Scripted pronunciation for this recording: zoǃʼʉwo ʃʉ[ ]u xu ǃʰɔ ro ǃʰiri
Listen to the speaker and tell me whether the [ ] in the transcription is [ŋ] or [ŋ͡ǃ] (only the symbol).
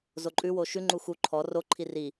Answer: ŋ͡ǃ